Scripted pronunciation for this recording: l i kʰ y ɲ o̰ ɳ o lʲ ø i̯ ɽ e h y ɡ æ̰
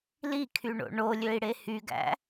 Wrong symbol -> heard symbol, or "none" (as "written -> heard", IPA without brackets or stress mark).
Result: ɲ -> ɳ